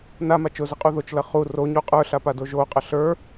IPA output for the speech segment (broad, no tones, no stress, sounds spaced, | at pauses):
n a m a t͡ʃ ʊ z ə qʼ u ð o t͡ʃ l ɐ χ u r o ɲ u qʼ ə˞ ɬ a p a d o ʒ o qʼ ɐ ɬ ə˞